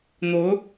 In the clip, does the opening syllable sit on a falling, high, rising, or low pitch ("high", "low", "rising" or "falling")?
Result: rising